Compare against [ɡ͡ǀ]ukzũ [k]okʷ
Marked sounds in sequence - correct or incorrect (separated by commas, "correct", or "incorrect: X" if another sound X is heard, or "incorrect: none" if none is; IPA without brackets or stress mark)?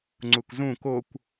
incorrect: ŋ͡ǀ, correct